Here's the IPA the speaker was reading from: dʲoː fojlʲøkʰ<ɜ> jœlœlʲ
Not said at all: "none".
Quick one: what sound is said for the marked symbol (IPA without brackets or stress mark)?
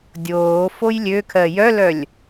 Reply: ɜ